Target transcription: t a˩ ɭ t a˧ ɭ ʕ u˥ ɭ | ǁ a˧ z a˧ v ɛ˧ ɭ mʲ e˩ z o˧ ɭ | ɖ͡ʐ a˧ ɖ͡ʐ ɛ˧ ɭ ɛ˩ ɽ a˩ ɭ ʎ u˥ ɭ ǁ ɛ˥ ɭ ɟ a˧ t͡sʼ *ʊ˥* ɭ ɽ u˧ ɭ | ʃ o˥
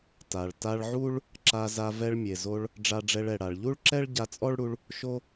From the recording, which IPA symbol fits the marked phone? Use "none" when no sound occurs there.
ɔ˥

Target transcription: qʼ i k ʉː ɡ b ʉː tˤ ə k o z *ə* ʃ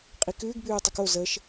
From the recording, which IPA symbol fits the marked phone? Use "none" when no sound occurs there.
ə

